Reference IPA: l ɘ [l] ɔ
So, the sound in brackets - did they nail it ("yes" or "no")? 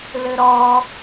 no